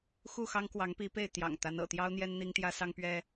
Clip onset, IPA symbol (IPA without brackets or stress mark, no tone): x